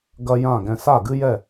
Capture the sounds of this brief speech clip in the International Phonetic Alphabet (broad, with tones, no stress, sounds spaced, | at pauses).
ɡ ɐ˦ j ã˦˨ ɡ ɛ̃˦ s a˦˨ ɡ ɨ˦ j ɛ˦˨